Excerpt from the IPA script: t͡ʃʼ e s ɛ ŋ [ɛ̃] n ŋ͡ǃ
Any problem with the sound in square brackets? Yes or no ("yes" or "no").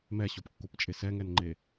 yes